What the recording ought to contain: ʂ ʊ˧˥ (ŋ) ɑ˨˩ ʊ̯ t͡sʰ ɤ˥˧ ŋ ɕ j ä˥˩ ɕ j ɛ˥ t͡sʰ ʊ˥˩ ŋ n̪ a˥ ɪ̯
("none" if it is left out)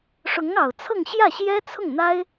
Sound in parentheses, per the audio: ŋ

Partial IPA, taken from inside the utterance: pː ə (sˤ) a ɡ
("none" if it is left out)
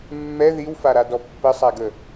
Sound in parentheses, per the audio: sˤ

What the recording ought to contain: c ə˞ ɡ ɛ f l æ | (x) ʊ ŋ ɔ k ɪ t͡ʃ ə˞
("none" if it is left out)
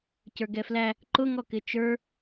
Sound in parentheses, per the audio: ǃ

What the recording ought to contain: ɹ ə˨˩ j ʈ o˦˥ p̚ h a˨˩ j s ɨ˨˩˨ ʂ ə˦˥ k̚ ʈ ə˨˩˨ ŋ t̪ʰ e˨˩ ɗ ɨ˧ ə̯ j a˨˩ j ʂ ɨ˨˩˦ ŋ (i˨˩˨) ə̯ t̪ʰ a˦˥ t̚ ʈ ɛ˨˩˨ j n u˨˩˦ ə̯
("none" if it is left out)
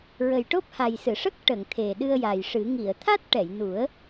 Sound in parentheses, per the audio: i˨˩˨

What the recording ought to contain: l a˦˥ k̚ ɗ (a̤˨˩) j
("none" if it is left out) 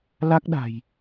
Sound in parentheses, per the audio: a̤˨˩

